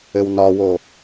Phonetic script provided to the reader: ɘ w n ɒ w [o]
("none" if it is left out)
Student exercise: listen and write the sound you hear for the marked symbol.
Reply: o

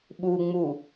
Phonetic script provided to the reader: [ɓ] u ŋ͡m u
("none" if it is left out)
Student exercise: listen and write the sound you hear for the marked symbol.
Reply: ɓ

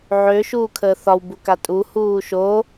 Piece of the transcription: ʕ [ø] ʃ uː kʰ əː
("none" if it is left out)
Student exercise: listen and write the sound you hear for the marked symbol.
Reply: ø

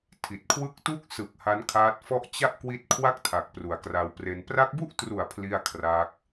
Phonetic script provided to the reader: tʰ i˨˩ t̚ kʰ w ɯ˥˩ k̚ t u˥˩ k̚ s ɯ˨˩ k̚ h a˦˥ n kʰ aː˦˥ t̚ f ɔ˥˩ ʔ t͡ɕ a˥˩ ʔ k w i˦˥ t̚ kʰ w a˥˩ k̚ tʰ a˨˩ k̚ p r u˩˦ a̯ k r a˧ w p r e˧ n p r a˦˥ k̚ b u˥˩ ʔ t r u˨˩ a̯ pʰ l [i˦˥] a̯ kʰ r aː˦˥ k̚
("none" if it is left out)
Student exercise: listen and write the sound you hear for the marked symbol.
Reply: i˥˩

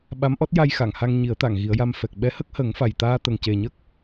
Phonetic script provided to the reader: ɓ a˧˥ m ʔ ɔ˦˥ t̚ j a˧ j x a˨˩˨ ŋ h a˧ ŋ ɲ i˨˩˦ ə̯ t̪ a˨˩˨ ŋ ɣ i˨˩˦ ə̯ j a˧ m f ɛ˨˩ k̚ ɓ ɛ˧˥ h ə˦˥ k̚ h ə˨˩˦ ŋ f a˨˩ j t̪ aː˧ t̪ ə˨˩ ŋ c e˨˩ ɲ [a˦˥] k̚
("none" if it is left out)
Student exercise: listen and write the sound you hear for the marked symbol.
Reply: ə˦˥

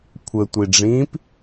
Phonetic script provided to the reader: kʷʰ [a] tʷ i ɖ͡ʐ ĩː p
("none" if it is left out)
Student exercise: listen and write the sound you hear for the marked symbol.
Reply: ə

